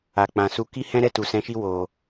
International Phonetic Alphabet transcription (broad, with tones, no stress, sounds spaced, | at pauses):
a˨ k͡p ã˨ s u˧ k i˦ h ɛ̃˦ ɾ ɛ˦˨ t u˨ s ɛ̃˨˦ ʃ i˧ w o˨